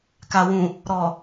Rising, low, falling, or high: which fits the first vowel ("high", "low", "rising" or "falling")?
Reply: low